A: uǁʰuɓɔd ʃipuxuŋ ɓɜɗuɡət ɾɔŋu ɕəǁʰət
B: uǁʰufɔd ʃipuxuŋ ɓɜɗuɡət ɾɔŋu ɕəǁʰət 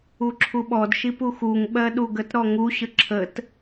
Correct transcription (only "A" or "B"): A